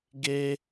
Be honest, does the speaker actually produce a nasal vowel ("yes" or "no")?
no